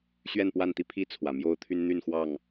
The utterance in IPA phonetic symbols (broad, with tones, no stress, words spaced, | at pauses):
ɕɥɛ˥˨npwa˥˨nt̪i˦pʰi˥˨ t͡sʰwä˨˩mjo˥˨ʊ̯ t̪ʰy˦nn̪y˥˨nxwɑ˥˨ŋ